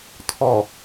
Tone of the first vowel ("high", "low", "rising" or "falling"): low